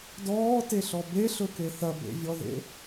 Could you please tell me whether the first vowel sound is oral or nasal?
oral